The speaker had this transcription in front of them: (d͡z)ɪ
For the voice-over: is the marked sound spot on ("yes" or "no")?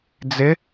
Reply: yes